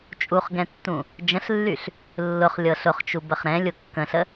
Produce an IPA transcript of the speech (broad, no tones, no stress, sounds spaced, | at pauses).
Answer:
t͡ʃʼ u χ ɡ ɛ̃ tː ũ | d͡ʒ ə̃ ɬ lː y ɬ | lː ʊ χ lʲ ɤ ɬ ʊ χ t͡ʃ u b ə χ ɾ ɛ̃ lʲ ʊ kː ə̃ ɬ ə